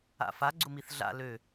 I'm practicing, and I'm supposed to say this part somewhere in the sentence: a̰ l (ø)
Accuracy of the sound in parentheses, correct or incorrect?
correct